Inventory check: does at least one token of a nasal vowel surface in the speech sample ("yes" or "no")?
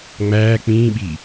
yes